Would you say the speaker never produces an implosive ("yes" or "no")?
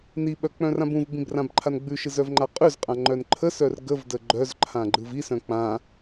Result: no